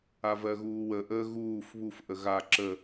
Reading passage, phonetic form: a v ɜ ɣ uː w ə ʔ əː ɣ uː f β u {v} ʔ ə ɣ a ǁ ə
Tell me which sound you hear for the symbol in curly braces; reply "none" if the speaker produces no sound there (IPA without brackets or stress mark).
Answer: f